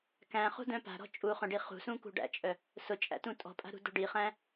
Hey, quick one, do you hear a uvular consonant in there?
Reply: yes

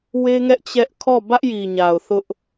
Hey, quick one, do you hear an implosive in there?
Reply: no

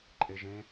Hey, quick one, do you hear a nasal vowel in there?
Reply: yes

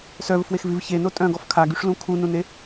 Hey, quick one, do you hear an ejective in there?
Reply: yes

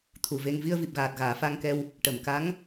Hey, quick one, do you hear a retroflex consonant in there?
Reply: yes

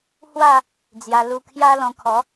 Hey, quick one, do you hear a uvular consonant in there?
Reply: no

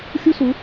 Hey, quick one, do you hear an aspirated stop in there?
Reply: no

